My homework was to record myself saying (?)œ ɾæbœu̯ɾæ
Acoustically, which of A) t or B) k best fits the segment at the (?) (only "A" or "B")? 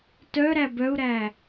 A